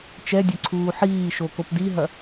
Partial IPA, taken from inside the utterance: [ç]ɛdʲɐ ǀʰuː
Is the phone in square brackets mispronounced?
yes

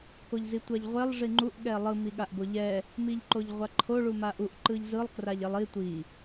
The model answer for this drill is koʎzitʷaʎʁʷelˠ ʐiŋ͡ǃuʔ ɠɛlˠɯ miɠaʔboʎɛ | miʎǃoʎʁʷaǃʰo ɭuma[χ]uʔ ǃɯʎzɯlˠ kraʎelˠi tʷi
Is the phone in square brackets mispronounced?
yes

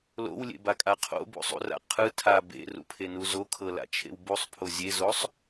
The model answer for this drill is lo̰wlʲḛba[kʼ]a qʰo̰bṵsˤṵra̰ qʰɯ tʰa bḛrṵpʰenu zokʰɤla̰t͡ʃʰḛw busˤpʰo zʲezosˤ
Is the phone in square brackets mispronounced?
no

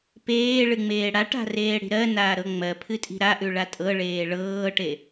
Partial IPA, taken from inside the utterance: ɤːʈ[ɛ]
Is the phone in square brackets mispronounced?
yes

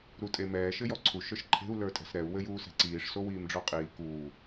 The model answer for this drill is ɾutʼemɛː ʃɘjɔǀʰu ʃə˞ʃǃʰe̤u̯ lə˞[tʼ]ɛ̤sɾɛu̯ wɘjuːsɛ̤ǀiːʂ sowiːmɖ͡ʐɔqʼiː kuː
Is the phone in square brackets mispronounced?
no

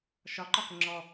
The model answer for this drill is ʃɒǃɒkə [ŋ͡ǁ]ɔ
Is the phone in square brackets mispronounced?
no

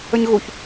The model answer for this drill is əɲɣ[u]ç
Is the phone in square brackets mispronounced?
no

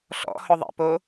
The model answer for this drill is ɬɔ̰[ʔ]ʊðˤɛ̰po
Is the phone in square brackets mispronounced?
yes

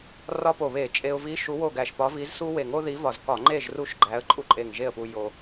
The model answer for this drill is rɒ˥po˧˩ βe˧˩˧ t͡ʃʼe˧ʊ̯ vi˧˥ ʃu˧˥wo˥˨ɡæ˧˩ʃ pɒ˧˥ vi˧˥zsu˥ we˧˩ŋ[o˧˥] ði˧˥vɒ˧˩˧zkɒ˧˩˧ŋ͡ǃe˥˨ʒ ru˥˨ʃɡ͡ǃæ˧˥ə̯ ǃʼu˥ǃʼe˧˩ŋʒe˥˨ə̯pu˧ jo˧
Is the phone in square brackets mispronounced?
yes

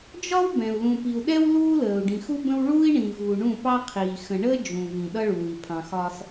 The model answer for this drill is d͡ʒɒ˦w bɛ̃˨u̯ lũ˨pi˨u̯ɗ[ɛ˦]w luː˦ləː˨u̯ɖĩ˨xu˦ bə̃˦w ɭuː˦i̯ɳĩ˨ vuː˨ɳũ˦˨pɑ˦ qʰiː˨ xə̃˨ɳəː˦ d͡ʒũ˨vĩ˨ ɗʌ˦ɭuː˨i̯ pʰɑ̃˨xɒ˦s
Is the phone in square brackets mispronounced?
no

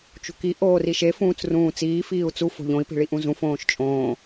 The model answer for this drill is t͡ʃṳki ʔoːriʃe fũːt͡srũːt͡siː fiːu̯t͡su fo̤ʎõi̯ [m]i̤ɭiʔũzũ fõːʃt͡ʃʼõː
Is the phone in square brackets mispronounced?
yes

